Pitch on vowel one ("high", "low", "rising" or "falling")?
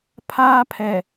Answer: high